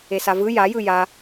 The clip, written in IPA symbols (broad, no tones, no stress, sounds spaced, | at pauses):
e s a v ɯ j a j ɯ j a